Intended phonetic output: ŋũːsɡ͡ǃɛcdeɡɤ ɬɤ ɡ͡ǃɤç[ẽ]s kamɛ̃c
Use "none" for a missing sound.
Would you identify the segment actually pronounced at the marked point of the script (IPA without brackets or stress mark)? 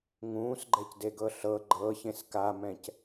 ẽ